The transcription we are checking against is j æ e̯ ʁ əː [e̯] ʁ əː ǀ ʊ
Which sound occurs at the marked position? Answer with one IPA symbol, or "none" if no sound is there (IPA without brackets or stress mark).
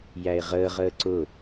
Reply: none